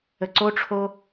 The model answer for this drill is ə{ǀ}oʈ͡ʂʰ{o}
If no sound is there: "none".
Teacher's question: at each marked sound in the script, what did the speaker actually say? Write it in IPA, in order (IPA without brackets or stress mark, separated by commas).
ǀ, o